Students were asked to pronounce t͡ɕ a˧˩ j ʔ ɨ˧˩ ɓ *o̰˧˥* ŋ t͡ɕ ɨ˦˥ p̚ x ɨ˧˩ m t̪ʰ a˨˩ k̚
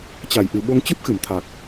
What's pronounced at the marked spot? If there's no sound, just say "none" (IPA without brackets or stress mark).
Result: o˧